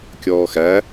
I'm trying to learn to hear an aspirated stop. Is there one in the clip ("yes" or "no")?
no